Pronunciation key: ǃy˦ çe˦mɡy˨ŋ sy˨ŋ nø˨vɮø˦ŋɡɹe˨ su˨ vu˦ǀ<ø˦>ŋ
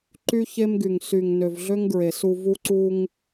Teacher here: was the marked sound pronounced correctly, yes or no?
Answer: no